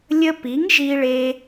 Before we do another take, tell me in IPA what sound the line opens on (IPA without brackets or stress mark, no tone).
lʲ